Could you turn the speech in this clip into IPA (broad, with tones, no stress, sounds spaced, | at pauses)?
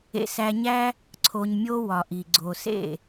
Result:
ḛ˧ s æ˧ ɲ æ˦ | ǀʰ o˧ ɲ mʲ o˦ w ɒ˨ ʔ i˨ ɡ͡ǀ o˨ s ḛ˦˨